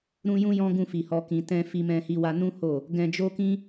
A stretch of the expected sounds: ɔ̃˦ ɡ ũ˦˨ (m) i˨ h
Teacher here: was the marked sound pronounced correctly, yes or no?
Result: no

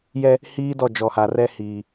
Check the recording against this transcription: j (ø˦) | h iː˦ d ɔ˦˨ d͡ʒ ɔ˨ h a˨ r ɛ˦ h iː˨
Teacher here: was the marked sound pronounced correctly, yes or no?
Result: no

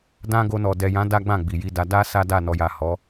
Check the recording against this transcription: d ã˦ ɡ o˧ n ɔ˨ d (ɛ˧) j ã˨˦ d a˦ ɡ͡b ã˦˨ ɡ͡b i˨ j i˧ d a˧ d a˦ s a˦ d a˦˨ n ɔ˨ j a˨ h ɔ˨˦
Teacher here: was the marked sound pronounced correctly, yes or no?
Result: no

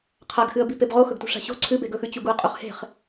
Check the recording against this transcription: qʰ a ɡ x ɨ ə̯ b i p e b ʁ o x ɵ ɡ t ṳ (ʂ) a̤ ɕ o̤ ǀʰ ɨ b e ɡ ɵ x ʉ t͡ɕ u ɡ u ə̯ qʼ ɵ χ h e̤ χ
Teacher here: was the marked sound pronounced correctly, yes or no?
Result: yes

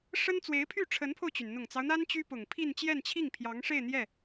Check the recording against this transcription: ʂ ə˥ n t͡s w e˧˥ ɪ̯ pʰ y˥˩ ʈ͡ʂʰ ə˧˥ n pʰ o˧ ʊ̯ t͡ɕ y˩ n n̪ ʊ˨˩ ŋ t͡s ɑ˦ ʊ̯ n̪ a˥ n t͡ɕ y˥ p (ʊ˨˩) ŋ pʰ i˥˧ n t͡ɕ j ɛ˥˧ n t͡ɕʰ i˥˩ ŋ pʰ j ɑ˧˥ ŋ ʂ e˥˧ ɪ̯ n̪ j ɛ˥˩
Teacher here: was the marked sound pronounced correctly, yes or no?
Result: yes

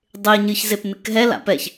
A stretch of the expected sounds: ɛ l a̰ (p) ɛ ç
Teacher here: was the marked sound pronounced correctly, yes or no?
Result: yes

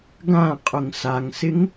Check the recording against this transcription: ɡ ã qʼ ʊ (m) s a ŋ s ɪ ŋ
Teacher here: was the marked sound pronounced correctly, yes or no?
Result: no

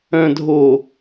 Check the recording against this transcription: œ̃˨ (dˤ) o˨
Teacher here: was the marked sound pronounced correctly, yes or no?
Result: no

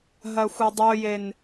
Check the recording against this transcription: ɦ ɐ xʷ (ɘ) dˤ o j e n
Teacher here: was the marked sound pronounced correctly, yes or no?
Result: yes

